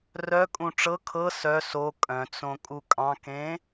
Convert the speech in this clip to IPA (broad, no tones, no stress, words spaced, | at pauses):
rœ kʼũʈ͡ʂɤ kʰɤ sœ so kʼœ̃t͡sõ kʼukʼɑ̃kẽ